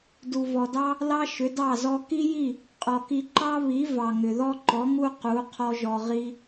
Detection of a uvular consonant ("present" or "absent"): present